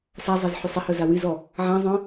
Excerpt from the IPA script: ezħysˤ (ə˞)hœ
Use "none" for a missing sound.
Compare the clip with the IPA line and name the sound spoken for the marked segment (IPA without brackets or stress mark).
ə